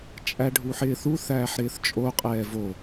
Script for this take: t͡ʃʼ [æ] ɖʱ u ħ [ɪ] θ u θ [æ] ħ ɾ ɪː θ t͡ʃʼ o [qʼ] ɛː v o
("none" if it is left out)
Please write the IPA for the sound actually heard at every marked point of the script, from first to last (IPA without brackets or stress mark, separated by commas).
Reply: æ, ɪː, æː, qʼ